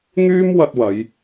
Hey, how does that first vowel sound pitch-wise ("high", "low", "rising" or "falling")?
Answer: high